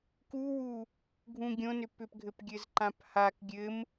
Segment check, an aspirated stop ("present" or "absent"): absent